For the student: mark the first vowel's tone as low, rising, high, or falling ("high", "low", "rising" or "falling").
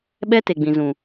high